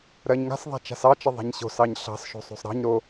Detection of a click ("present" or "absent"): absent